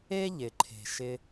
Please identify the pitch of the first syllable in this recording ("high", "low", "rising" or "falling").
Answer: high